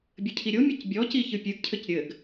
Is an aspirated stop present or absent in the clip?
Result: present